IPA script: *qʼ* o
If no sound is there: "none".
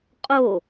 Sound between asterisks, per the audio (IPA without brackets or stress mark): qʼ